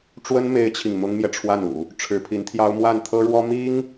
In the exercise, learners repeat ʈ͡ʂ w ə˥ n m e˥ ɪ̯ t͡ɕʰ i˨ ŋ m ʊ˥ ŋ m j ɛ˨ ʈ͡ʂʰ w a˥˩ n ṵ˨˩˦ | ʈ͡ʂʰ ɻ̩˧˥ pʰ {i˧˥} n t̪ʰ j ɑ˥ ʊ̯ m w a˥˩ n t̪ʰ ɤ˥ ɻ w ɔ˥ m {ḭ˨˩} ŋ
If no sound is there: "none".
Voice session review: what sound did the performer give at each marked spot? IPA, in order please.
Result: i˧˥, i˥

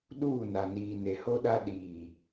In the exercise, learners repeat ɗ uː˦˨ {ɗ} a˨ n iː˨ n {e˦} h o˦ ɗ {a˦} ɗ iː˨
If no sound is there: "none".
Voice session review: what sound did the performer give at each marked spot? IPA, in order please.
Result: n, e˨, a˦

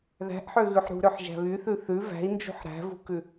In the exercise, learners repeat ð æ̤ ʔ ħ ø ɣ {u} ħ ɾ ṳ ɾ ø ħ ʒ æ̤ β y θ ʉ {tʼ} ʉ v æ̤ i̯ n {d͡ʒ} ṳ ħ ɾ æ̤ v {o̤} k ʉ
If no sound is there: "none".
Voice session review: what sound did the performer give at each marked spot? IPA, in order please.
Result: ʉ, θ, d͡ʒ, ṳ

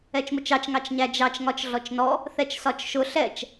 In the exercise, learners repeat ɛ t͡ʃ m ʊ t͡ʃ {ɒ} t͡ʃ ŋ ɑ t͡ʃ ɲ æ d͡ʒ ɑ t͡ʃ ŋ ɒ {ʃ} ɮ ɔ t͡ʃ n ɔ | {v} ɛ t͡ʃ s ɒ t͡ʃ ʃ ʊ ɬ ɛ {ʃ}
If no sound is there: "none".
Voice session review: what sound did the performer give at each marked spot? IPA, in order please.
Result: ɑ, t͡ʃ, θ, t͡ʃ

